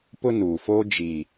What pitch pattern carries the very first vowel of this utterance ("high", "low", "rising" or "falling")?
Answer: high